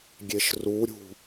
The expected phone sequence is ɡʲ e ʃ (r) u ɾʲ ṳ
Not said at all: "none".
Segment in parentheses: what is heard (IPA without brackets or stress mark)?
r